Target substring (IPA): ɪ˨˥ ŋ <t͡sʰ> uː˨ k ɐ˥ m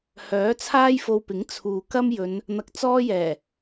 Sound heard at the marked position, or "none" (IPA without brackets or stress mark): t͡sʰ